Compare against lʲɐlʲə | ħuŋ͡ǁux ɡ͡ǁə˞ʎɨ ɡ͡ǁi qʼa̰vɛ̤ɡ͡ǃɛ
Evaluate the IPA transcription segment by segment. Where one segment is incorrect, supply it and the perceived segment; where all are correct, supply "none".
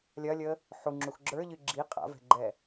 none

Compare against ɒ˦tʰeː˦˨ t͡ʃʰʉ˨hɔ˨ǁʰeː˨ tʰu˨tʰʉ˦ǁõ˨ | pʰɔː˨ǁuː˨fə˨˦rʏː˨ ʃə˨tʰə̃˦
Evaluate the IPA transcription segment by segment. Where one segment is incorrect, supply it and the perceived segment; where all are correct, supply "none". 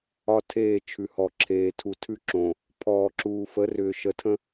none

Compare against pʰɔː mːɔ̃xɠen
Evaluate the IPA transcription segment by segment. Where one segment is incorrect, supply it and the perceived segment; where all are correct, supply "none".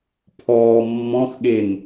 none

